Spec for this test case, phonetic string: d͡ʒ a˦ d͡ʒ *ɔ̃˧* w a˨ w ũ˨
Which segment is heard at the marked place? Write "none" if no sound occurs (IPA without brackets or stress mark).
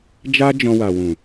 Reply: ɔ̃˧